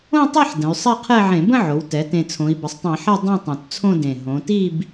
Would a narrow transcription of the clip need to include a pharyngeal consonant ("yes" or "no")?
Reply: yes